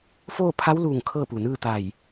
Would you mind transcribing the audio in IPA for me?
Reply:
f oː˥˨ pʰ a˧˥ w l uː˧˩ ŋ kʰ ɤː˥˨ p u˩ n ɯː˥˨ t̪ a˧˩ j

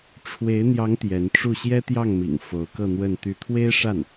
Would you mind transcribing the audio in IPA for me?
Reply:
ʈ͡ʂʰ w e˧˥ ɪ̯ n̪ j ɑ˧˥ ŋ t̪ j ɛ˧˥ n ʈ͡ʂ u˥˩ ɕ j ɛ˥ t̪ j ɑ˥˩ ŋ m ḭ˨˩ ŋ f o˧˥ ʊ̯ k ɤ˥˧ n̪ w ə˥˧ n t̪ y˥˩ t̪ʰ w e˥ ɪ̯ ʂ a˥˩ n

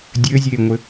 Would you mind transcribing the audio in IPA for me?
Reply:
dʲ ɘ zʲ eː ŋʷ ɘ

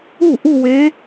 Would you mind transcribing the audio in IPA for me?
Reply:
u˥˩ ʔ u˥˧ w e˧˥

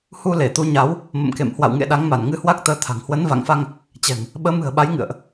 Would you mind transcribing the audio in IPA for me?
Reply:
h u˧ l e˧˩ t̪ u˨˦ ɲ a˨˦ w | m ə̰˧˨ m k ḛ˧˨ m h w a̰˧˨ w ŋ ḛ˧˨ ɗ a˨˦ ŋ m a˧˩ n ŋ ɨ˧ h w a˦˥ k̚ t̪ əː˨˦ t̪ʰ a̤˨˩ ŋ h w ə˨˦ n v a̰˧˨ ŋ f a˧ ŋ | t͡ɕ ɛ̤˨˩ ŋ | ɓ əː˨˦ m ɨ̤˨˩ ə̯ ɓ a˨˦ j ŋ ɨ̰˧˨ ə̯ ʔ

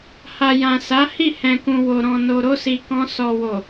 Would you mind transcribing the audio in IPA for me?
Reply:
h a˨ j ã˨ s a˨˦ h i˦˨ h ɛ̃˨ k ũ˨ w o˨ ɾ ɔ̃˨ n o˨ ɾ o˧ s i˨ k ɔ̃˧ s ɔ˨ w o˨

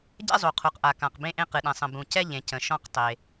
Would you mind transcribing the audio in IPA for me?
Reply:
ɟ ɛ̰˥ zˤ u˩ qʰ u˩ q ʔ a˩ k ã˩ q b ẽ˥ ʔ ẽ˥ q ɨ˩ ɗ ɛ̃˩ sˤ ə̃˩ b ũ˩ c ɛ˥ ʎ ẽ˩ c ə̃˩ ʃ ɔ̃˥ q tˤ e˩

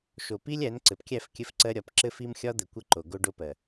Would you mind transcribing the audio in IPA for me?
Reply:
ʃ o˨ p i˦ lʲ æ˨˦ n ǀ ɘ˨ p kʲ æ˦˨ f kʲ ɘ˦ f ǀ ɜ˦ ɾʲ ɒ˨˦ p ǁ ɘ˦ f i˦ m xʲ ɒ˦ d̪ ɘ˨ kʷ ɘ˦˨ ǃ o˨ ɡ o˦ ɖ o˦ p ɜ˨

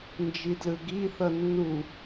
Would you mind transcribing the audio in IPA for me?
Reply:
n d͡ʒ i d l ɯ ɡ i θ ʌ nː u

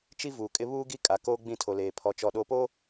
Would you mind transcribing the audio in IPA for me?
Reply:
t͡ʃ i˦ v uː˨ kʼ ɪ˦ β uː˦ ɡ i˦ kʼ a˨ k oː˦ ɡ͡b ĩ˦˨ tʰ o˨ l eː˨ pʰ ɔ˨ t͡ʃ ɔ˨ ɗ o˨ p o˦

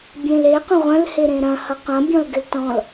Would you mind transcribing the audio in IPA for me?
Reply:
bʲ ẽ l e qʷ ɐ̃ ʁʷ ɐ̃ l h e ɾ ẽ ɾ ɐ̃ h ʌ qʷ ɐ̃ bʲ ɔ̃ l ɡ ɪ l t ɔ̃ l

